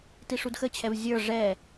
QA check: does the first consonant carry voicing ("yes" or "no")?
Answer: no